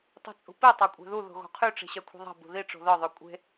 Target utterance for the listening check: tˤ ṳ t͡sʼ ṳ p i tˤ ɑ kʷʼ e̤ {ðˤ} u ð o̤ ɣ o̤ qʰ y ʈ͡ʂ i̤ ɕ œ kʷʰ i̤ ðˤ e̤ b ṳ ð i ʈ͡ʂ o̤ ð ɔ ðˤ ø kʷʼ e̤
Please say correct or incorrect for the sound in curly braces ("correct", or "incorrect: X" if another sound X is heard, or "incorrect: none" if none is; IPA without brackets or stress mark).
incorrect: ð